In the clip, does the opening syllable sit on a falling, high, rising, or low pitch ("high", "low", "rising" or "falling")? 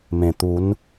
low